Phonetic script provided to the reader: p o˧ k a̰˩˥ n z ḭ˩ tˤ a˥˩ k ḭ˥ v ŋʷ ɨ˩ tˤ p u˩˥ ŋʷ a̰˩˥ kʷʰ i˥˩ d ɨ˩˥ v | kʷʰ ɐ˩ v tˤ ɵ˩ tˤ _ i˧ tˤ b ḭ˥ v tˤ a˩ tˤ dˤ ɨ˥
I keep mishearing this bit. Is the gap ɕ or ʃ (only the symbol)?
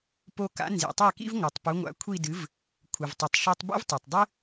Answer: ʃ